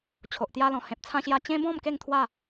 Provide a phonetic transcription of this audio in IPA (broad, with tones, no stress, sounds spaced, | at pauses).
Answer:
t͡ɕʰ o˨ ʔ t̪ j a˧ l ɔ̃˨˩ h ẽ˨ p̚ t͡sʰ ã˧ ɕ j a˧ t͡ɕ ẽ˦ b ɔ̃˥˧ m k e˥˧ ŋ t̪ʰ w a˥˧